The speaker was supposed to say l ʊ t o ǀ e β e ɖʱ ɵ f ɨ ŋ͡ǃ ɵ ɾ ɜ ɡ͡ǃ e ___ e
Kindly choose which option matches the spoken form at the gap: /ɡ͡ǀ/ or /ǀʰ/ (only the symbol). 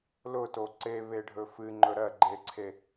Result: ǀʰ